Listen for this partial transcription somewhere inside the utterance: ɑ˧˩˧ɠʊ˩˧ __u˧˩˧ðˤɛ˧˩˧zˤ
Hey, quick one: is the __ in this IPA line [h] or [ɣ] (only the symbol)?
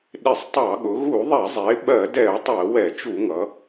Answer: ɣ